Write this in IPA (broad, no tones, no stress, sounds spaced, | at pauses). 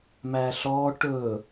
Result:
m æ ɬ ɔ ʈ ɵ